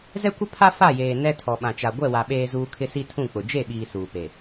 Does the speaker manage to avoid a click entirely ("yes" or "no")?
yes